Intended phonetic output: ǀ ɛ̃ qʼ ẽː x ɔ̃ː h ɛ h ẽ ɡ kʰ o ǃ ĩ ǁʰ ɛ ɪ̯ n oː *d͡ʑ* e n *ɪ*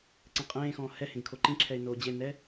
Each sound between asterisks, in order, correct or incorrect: correct, incorrect

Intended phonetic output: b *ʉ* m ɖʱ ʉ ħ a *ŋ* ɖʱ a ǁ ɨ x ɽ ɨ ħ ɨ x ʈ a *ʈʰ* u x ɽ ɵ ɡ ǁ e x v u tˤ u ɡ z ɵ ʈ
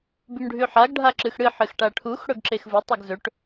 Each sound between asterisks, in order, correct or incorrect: correct, incorrect, correct

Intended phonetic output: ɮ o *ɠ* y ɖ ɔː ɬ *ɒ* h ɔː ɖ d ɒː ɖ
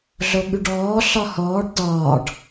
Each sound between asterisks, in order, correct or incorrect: correct, correct

